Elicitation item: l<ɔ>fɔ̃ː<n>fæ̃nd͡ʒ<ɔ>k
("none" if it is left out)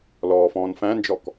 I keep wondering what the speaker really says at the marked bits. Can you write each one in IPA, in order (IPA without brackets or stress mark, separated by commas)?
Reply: ɔː, n, ɔ